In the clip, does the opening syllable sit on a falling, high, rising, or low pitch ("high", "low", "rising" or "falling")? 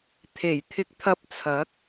low